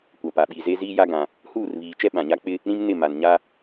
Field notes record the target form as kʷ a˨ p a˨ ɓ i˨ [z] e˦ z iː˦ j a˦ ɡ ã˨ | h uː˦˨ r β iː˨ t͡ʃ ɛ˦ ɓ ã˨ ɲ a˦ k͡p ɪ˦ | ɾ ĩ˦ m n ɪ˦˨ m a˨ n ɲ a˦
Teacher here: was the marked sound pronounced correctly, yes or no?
yes